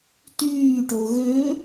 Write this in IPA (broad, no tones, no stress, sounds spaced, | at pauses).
t yː ʈ o ɣ ø